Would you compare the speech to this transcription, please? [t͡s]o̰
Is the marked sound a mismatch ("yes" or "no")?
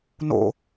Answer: yes